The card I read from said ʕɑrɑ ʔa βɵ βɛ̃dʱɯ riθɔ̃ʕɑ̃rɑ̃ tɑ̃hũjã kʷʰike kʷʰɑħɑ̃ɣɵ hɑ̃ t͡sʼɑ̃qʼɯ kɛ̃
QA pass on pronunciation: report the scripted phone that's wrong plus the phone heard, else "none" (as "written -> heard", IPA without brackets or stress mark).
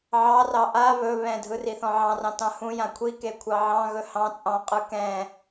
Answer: ħ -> ʕ